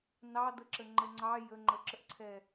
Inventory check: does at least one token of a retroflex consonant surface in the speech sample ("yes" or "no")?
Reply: no